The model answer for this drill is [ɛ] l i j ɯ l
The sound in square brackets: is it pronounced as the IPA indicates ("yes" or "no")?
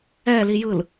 yes